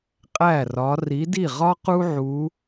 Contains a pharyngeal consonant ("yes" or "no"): yes